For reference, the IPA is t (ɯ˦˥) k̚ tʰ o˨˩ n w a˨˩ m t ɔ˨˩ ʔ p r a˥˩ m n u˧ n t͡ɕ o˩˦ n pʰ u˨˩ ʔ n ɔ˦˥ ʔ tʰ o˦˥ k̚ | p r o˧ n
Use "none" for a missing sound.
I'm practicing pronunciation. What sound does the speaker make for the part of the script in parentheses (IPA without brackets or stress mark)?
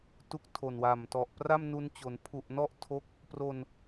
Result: u˦˥